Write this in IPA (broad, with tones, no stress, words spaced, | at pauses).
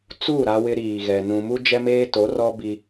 t͡su˦˨ ɾa˦wɪ˦ɾiː˨ɣɛ˨ nũ˨mu˦ d͡ʒɛ˦meː˦to˨˦rɔ˦ bi˦